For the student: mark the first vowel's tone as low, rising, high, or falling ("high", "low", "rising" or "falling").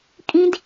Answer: high